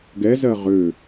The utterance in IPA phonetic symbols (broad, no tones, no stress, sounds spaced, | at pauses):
ɡ ɛ z ɜ ʁ ø